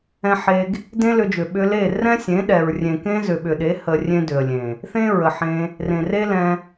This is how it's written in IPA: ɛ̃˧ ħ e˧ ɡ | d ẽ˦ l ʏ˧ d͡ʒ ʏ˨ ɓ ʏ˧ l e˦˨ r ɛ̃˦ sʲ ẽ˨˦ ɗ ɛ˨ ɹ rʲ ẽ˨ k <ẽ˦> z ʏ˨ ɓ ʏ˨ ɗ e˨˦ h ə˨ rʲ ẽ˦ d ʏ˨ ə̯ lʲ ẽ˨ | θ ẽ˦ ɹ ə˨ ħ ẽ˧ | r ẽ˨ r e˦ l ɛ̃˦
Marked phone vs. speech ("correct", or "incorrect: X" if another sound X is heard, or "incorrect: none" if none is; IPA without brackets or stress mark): correct